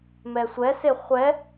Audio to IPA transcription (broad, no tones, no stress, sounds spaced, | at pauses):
m ɛ sʷ ɛ s e χʷ ɛ